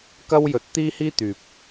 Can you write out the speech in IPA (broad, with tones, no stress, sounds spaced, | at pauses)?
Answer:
k ɐ˥ w j ɵ˨ t̚ t̪ iː˥ h iː˥ t̪ yː˨ p̚